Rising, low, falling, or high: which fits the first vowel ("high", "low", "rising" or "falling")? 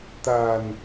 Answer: low